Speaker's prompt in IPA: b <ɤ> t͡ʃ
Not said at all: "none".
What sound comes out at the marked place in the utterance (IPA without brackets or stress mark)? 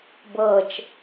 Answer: ɤ